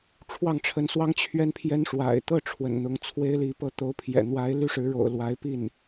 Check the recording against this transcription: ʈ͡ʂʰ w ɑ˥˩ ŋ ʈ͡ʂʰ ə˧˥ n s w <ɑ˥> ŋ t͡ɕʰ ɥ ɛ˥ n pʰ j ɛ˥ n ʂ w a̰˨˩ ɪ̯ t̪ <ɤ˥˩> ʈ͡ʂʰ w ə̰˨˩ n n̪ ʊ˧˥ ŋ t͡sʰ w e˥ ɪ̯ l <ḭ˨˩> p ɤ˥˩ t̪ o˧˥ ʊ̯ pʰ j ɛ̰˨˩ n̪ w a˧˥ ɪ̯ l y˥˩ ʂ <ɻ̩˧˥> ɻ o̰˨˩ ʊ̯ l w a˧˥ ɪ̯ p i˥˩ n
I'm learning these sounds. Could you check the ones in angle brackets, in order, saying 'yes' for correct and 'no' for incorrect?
yes, yes, no, yes

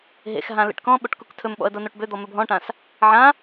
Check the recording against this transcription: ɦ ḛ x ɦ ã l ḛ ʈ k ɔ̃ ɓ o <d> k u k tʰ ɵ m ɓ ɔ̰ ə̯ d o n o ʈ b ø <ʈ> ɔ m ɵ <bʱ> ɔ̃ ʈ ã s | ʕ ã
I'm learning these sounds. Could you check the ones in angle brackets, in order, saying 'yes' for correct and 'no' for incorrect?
no, no, yes

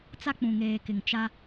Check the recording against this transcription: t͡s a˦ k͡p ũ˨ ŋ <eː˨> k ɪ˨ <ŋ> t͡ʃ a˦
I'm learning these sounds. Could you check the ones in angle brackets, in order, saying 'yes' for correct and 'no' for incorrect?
yes, yes

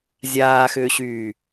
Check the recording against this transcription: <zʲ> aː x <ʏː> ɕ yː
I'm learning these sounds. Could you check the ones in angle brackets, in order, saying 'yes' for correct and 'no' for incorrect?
yes, yes

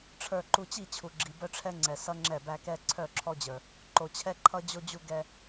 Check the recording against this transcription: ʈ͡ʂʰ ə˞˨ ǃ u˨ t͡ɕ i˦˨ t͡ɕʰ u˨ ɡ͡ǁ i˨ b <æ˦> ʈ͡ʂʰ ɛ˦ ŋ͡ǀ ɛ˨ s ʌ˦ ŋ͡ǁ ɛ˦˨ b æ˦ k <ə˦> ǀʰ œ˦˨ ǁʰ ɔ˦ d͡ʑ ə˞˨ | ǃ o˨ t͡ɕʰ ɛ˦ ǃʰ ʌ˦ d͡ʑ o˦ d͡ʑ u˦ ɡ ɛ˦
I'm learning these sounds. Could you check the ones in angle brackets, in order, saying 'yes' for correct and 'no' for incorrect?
no, no

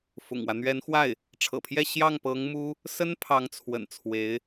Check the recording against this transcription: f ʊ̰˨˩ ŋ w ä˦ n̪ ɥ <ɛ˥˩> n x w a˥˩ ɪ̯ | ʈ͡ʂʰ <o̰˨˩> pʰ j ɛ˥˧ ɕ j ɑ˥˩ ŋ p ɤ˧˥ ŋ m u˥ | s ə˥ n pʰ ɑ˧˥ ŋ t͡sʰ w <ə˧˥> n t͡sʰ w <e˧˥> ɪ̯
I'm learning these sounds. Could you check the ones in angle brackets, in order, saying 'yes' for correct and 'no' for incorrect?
no, no, no, yes

